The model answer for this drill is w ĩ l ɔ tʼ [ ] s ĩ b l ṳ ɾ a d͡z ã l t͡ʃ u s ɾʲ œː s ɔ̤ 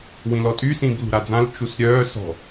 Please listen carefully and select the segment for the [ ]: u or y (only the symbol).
y